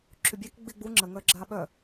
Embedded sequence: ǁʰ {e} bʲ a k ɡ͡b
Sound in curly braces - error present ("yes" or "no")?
yes